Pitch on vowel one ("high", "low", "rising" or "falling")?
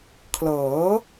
rising